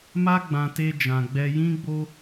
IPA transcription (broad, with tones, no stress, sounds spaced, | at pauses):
m a˦ ɡ͡b ã˧ t e˦ d͡ʒ ã˧ ɡ͡b ɛ˦ j ĩ˦ ɡ͡b o˦